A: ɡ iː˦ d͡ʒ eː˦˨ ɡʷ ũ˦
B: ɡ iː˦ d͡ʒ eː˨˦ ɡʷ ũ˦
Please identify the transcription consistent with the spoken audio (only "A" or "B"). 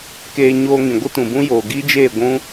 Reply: A